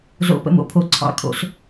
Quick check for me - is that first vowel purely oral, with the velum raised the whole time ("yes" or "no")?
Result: yes